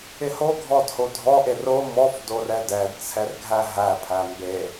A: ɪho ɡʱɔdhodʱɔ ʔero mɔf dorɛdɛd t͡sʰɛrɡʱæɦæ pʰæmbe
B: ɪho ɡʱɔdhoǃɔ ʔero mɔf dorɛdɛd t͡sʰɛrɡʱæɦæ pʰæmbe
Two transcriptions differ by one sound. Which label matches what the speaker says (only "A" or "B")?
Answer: A